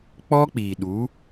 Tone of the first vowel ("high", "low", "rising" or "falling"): high